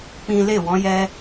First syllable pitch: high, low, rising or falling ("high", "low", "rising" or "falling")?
high